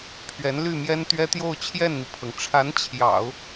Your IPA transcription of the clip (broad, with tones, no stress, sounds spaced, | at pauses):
pʰ ɥ ɛ˧˥ n l y˥˩ m j ɛ˥ n t̪ ɥ ɛ˥ t̪ j o˥˧ ʊ̯ t͡ɕʰ j ɛ˥˩ n n̪ i˩ pʰ ɤ˩ ŋ ʈ͡ʂʰ a˧˥ n t͡ɕʰ j ɑ̰˨˩˦ ʊ̯